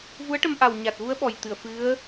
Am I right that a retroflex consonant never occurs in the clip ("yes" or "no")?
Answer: no